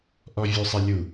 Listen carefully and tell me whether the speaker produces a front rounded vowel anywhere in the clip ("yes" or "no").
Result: no